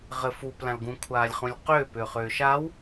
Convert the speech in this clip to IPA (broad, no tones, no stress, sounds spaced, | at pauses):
ʁ ɘ f u p l ã l ɡ ũ kʷʰ aː lʲ χ ũ lʲ q ʏː p ʏː χ ʏː ʃ a w